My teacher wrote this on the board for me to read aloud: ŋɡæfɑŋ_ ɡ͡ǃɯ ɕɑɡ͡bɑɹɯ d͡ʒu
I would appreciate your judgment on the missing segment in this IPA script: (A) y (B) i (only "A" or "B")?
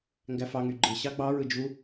A